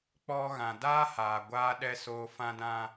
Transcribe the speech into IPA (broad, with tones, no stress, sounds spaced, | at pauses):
k͡p ɔ˧ ɣ ã˨ d aː˦ h aː˨ ɡʷ aː˦ ɗ ɛ˧ s oː˧ f ã˦ d ã˦